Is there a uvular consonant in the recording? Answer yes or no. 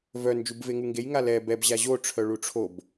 no